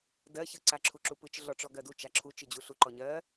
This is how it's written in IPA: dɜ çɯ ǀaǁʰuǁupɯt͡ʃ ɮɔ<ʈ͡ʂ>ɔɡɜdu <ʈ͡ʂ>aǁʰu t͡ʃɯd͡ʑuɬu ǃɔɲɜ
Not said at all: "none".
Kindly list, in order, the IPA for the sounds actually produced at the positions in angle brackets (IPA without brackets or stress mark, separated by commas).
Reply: ʈ͡ʂ, t͡ʃ